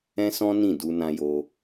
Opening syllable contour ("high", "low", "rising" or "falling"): high